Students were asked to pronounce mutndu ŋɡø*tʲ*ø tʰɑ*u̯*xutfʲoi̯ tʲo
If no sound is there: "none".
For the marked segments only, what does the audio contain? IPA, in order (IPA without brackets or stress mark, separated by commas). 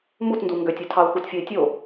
tʲ, u̯